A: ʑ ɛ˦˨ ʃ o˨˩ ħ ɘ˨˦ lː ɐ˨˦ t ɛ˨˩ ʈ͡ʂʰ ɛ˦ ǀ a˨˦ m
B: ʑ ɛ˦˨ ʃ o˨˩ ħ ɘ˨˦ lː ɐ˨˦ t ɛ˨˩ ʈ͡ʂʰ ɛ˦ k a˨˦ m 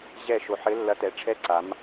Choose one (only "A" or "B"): A